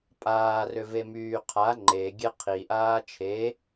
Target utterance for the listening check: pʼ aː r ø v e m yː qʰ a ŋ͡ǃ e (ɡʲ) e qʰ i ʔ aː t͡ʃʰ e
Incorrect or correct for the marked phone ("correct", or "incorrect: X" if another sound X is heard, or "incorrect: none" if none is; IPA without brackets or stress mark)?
correct